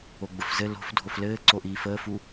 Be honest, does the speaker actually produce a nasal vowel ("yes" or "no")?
no